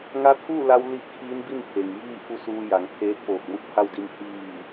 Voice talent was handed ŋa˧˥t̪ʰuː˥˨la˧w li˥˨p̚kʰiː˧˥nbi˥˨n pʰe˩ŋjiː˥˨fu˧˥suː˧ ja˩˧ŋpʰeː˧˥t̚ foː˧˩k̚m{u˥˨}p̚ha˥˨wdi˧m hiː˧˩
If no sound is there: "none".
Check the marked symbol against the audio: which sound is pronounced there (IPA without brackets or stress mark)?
u˥˨